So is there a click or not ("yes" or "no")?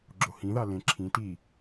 yes